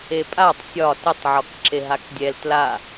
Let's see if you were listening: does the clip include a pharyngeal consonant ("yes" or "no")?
yes